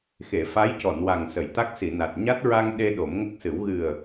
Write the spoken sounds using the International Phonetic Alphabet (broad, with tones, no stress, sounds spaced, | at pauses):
x e˨˩˨ f a˧˥ j c ɔ˨˩˨ n w a˨˩ ŋ s ə˨˩˨ j t̪ a˦˥ k̚ s i˨˩˨ n a˨˩ t̚ ɲ a˦˥ t̚ ɹ a˧ ŋ ɗ e˧ ɗ o˨˩˦ m ŋ ə˦˥ k̚ s ɨ˨˩˦ w ɣ ɨ˨˩ ə̯